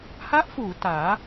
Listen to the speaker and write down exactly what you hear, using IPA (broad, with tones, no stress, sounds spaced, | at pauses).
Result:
h a˦˥ ʔ f uː˩˦ t aː˩˦